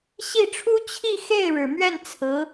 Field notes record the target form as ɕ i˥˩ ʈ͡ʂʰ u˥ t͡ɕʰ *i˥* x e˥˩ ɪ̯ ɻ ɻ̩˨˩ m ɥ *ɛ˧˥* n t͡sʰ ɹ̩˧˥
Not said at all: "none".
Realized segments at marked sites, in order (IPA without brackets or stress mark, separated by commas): i˥˧, ɛ˥˩